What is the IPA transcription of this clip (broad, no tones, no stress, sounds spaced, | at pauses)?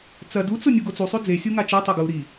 t͡s ɐ d u t͡s o nʲ u ɡ o t͡s u sˤ ʉ d͡z e sʲ u ŋ a t͡ʃ e tˤ o ɡ u ɾ i